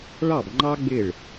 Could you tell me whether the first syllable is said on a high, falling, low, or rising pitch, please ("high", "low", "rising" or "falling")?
falling